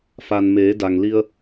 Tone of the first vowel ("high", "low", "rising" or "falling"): low